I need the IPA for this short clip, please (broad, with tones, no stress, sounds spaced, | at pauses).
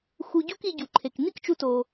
x u˧ ɟ u˥ k i˧ ɟ u˩ ǃʰ e˩ k n̪ i˥ k t͡ʃ u˧ t o˩